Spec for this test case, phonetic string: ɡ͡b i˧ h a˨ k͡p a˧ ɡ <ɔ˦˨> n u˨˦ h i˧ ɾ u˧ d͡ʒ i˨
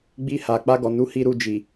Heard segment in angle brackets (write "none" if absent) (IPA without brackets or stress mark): ɔ˨